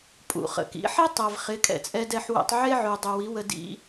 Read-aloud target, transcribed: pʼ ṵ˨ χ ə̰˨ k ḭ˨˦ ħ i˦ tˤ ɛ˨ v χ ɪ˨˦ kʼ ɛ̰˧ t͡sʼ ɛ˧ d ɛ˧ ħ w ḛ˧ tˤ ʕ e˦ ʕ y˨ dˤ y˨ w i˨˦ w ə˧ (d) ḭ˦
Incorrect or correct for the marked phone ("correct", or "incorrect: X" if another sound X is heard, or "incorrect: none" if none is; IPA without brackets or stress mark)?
correct